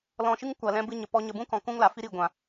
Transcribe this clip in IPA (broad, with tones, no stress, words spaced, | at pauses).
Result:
lɔ̃˧ʃɨ˦ŋ kʷa˨lɛ̃˧ bɨ˦ɲə˨pɔ˦ɲə˧ bũ˦kɔ̃˨ kũ˦ŋla˨fi˦ɾi˦˨ ɡʷã˨